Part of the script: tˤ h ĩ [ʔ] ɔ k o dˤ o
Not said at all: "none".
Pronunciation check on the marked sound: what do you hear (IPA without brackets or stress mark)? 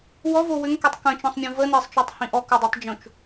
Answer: ʔ